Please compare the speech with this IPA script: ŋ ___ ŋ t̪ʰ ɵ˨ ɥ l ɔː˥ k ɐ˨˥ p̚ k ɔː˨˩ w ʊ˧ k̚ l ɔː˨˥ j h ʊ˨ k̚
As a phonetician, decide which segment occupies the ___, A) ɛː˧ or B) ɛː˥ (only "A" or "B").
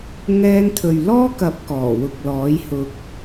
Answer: A